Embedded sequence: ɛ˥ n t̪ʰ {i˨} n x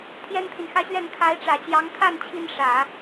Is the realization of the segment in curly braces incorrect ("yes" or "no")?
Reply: no